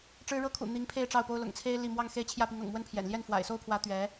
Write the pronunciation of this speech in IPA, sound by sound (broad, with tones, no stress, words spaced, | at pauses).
ʈ͡ʂɻ̩˥ɻɤ˥kʰṵ˨˩ n̪i˧˥ŋpʰe˥˧ɪ̯ ʈ͡ʂɑ˥˩ʊ̯po˥ʊ̯ lʊ̰˨˩ŋt͡sʰe˥ɪ̯ li˥˧ mwɑ˥˧ŋ xe˥˧ɪ̯t͡ɕʰjä˥˩pi˧˥ŋɤ̰˨˩ŋ mwə˥npʰjɛ̰˨˩n ljɛ˥˩nfwa̰˨˩ɪ̯so˥ʊ̯pʰwä˧˥ t̪ɥɛ˧˥